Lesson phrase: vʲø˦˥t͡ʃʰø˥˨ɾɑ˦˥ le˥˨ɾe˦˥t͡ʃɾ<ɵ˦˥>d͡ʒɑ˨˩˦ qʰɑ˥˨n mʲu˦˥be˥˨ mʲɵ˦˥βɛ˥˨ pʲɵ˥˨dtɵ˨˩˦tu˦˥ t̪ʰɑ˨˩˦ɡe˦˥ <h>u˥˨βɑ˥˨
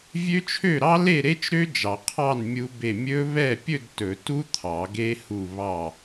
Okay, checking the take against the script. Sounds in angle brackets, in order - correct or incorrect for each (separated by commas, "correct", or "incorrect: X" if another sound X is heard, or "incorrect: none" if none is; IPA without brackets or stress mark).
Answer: incorrect: ø˦˥, correct